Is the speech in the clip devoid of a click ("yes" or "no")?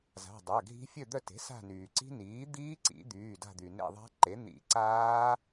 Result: no